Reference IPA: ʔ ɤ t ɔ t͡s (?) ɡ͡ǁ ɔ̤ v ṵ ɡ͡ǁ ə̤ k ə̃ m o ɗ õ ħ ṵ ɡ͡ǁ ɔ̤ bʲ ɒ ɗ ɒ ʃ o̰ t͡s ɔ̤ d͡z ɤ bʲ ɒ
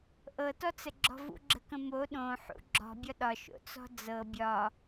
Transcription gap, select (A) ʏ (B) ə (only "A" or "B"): B